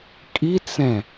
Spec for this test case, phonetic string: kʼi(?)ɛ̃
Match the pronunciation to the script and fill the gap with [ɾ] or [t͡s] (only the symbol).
t͡s